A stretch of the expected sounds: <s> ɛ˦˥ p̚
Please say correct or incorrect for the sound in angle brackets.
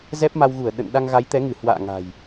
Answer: incorrect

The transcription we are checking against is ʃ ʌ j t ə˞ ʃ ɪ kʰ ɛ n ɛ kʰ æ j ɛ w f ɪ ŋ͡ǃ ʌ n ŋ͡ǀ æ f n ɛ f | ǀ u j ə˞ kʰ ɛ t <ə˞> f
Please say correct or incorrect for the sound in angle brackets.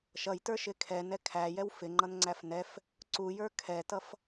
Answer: incorrect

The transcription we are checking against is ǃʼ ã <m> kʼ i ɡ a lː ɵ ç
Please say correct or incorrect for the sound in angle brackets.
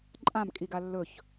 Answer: correct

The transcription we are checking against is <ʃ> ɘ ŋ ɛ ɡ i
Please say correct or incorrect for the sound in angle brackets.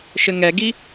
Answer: correct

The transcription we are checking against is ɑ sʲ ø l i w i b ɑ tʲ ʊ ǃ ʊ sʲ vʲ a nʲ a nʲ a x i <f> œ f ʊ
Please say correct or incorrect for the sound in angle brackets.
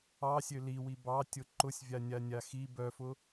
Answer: incorrect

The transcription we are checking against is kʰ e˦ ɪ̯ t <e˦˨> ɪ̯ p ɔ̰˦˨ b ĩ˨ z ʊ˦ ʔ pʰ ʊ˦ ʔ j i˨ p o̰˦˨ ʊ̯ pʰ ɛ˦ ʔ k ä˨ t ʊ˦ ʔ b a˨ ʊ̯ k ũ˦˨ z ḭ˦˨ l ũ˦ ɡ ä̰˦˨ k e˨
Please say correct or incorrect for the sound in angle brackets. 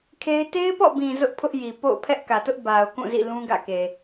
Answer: incorrect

